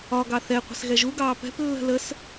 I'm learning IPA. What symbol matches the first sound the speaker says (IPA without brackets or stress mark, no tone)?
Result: ɒ